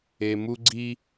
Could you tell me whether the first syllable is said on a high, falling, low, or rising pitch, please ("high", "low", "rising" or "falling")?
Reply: low